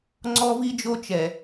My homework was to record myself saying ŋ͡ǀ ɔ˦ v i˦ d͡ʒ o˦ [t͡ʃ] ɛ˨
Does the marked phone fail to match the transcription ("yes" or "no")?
no